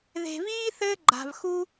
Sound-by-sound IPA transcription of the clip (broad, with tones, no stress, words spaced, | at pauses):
ðe̤˨viː˦ θɘː˦ɡ͡ǃa̤˨vxu˦